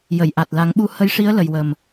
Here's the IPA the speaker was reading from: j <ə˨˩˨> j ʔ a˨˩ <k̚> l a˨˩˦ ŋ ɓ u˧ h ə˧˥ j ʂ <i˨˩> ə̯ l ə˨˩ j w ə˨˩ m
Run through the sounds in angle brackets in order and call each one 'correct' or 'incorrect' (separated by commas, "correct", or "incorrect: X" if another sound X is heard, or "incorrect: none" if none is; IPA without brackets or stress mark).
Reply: correct, incorrect: t̚, incorrect: i˧˥